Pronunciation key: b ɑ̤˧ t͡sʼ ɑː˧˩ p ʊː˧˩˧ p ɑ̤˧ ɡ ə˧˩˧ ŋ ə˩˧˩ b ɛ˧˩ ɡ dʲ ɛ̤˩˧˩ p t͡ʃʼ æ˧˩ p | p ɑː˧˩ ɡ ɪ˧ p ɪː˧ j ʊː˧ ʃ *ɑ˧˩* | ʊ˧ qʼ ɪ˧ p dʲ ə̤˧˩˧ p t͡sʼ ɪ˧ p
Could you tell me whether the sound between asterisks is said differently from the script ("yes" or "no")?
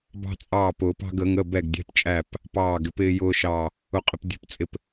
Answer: no